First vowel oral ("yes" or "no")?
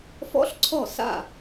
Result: yes